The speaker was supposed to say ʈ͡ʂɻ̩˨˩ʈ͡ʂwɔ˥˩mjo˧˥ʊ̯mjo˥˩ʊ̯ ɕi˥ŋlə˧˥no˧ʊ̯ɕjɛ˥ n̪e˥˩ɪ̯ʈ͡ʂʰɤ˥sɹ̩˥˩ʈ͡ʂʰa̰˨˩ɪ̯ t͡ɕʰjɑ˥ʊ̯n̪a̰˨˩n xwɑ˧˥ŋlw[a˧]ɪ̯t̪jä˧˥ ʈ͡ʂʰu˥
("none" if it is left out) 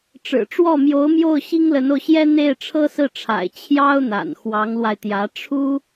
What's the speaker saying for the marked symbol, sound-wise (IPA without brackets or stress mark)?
a˧